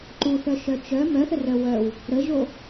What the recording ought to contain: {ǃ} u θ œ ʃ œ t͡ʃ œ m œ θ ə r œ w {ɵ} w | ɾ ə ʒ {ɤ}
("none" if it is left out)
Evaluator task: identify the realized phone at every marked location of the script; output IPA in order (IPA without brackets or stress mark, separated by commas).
ǃ, œ, o